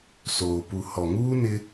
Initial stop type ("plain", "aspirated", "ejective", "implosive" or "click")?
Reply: plain